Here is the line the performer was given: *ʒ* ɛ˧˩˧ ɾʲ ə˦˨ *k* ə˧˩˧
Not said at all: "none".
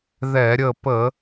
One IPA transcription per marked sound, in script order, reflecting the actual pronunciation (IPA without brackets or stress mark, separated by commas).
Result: ð, p